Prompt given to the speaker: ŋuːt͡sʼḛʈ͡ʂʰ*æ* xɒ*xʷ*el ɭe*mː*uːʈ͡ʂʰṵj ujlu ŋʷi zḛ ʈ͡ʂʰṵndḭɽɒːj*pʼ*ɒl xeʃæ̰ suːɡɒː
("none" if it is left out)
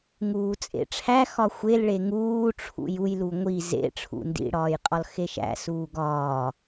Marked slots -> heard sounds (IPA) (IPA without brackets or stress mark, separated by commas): æ, xʷ, ŋ, qʼ